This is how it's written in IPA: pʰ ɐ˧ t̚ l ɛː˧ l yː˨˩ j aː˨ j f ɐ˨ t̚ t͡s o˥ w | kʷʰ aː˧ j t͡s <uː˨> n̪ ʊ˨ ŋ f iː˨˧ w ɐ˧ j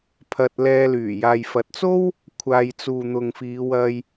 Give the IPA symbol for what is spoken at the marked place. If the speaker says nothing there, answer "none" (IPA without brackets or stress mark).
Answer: uː˨